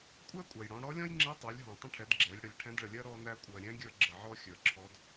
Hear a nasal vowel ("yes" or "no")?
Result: yes